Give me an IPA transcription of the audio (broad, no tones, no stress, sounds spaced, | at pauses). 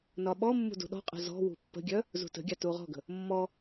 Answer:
n ɒ ɓ ɔ mː ṳ d ṳ ɗ ɔ̤ qʼ ə̤ z ɔ̤ w ṳ pː ə̤ ɡʲ œ | z ṳ t ə̤ ɡʲ a t u ʁ ɔ̤ ɡ ə̤ | mː ɔ